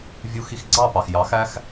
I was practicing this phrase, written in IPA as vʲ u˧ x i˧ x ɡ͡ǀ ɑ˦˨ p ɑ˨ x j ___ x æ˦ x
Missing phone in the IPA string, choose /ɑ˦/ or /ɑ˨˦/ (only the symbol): ɑ˨˦